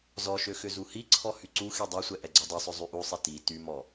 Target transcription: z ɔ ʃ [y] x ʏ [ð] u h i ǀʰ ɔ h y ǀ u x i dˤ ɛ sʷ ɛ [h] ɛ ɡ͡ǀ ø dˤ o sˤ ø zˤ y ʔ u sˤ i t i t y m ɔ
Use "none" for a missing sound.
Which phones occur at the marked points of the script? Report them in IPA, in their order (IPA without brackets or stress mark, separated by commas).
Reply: ø, z, ʔ